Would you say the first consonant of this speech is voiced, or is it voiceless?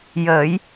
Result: voiced